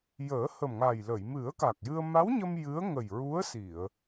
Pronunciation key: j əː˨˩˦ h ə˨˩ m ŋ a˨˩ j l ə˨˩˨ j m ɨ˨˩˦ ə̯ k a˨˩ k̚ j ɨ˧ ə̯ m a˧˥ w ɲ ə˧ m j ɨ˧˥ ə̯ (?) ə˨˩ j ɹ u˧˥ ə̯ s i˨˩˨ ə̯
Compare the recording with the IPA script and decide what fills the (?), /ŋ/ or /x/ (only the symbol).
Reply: ŋ